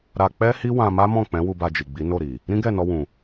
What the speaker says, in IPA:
ɾ a˧ k͡p ɛ˦ h i˦ w ã˧ m a˦ m ɔ̃˦˨ k͡p ɛ̃˨˦ w u˧ b a˧ d͡ʒ i˨ ɡ͡b i˨˦ n o˦˨ ɾ i˨ | ɾ ĩ˦ ɡ ɛ˦˨ n ɔ˧ w ũ˨

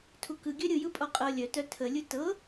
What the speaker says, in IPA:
tʰ u k ɯ ɡʲ œ ɾʲ ɯ j ɯ pʼ ɔ qʼ ɤ lʲ œ t œ tʰ ə lʲ ɯ t ɤ

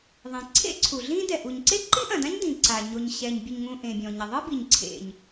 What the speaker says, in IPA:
ðˤ ẽ˩ ǀʰ ḛ˥ ǀʰ u˩ ɮ ĩ˥ d ɛ˩ ʔ u˩ ɲ ǀ e˥ ǃ i˥ ʔ ɐ̃˩ d ã˥ ɲ d ĩ˩ ǀ a˩ ɲ o˩ ɲ ɕ ɛ˩ ɲ bʲ ɘ˩ ɲ ŋ ũ˩ ʔ ẽ˩ bʲ ɔ̃˩ ɲ ɐ˩ ðˤ ɨ˥ b i˩ ɲ ǀʰ ḛ˩ ɲ

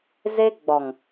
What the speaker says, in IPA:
z e˦ ɡ͡b ɔ˨ ŋ

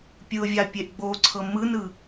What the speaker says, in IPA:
pʲ ɯ ʊ̯ vʲ a pʲ e ʔ ɡ͡b o ǀʰ ɤ m ɯ n ɯ

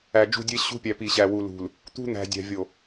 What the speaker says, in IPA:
æ˨ d͡ʒ ṳ˦˨ dʲ e˦ ɕ ṳ˦ pʲ æ˨ p i˨ ɕ æ˨ w u˨ l ṳ˨ l | t̪ ṳ˦ n̪ æ̤˨ dʲ æ̤˨ vʲ o˨

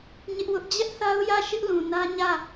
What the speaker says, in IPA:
ɲ ɪ˦ ʔ w ʊ˦ ʔ d͡ʑ ɛ˦ ʔ θ a˦ ʊ̯ j ä˦˨ ʃ ɪ˦ ʔ l ũ˨ n ä˦ ɲ ä˦˨

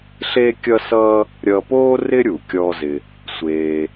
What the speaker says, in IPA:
ɬ e˥ kʲ ʌ˥ s ʌː˥ | ɾʲ ʌ˧ p oː˥ r ɪ˥ ɾʲ u˩ kʲ ɔ˧ z ɪ˧ | sʷ eː˧

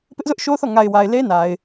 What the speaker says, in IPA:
p ɪ˦ ʔ z ʊ˦ ʔ ʃ o˦ θ ɔ˦˨ ŋ a˨ ɪ̯ w a˨ ɪ̯ l e˦ n a˨ ɪ̯

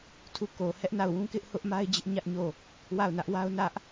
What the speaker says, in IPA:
tʰ u˦˨ k o˨ h ɛ˦ ʔ n a˦˨ ʊ̯ w ũ˦ k ɪ˦ ʔ h ʊ˦ ʔ m a˦ ɪ̯ d͡ʑ ɪ˦ ʔ ɲ ä˦ ʔ ɲ o˦˨ | w a˦˨ ʊ̯ n ä˦ ʔ w a˦ ʊ̯ n ä˦ ʔ

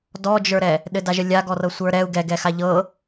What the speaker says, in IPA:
d ɔ d͡ʒ ə˞ ɾ ɛ | ɗ ɘ d a ʒ ə lʲ a ɡ ɔ r ɤ sʷ ə˞ ɾ ɛ u̯ ɡ ɛ ɡ ɛ x a ʎ ɤ

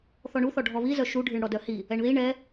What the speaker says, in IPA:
θ ɔ ɳ u θ ɔ ɖʱ ɔ β i z œ ʃ u ɖʱ ɨ ɳ ɽ ɔ d œ h i | ɛ ɳ ð i ɳ ɛ

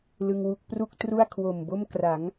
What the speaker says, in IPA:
l ɯ˧ ŋ w u˦˥ k̚ p r u˥˩ k̚ t r u˥˩ a̯ kʰ w o˨˩ m b o˥˩ m k r a˩˦ ŋ

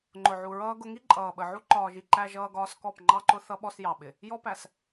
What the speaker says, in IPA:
ŋ͡ǃ ʊ˨ ʕ u˨ ɹ ʌː˦ ɡ ʊ˦ ŋ i˦ ǃʼ ʌː˨ ɓ ə˨ ʕ u˦ ǃ ɒː˨ ʒ i˨ ǃ æ˦ ʒ ʌː˦ ɡ ɒː˦ s k ɔ˦˨ p ŋ͡ǃ ɑ˦ ǃ ʊ˦ θ ʌ˦ ɓ ɔ˦ s j ɑ˨ ɓ ɪ˨ | j ɔ˦ p æ˨ s

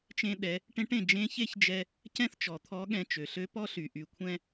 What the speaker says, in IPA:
t͡ʃ ẽ˧ ɗ ɛ˩˧ | ʈ ẽ˧˥ ʈ ẽ˩ d͡ʒ ẽ˧˥ ç e˥ ç d͡ʒ ɛ˧ | c ɛ̃˥ θ t͡ʃ ɔ˩ t̪ʰ ɔ˧˥ ɠ ɛ̃˧ t͡ʃ ø˩ ɬ ø˧˥ p ɔ˥ ɬ y˩ ʔ y˩ kʷʰ ɛ̃˧

